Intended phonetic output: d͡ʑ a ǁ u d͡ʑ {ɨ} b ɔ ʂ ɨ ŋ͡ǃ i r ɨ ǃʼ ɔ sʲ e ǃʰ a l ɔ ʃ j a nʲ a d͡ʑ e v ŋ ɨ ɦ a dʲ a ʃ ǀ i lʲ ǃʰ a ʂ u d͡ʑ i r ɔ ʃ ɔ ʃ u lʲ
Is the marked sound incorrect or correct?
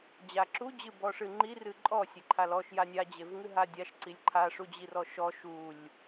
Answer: correct